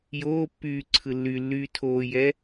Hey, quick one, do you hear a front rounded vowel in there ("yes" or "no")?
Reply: yes